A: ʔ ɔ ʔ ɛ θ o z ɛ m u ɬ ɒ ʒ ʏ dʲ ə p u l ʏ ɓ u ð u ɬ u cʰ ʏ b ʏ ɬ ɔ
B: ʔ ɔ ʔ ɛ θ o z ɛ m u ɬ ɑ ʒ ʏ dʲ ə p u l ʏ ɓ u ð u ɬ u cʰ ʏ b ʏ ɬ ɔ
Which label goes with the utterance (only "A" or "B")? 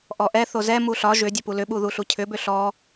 A